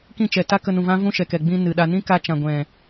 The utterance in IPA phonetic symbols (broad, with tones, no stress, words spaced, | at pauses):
kĩ˦˨t͡ʃɛ˨ta˦ kə˧nũ˨vã˦ vũ˦ʃɛ˨kɛ˨ ɡ͡bĩ˧ nɨ˨ɗa˧ nĩ˦ka˧t͡ʃã˨ɡʷɛ̃˨